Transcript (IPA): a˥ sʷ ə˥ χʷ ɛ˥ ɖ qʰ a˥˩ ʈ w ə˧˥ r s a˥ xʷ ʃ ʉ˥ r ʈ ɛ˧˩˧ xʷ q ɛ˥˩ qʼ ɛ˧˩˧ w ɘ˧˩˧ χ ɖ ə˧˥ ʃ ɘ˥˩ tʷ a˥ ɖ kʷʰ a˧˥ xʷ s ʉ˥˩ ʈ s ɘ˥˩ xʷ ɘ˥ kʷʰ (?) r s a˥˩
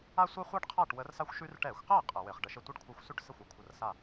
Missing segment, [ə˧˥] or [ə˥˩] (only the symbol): ə˥˩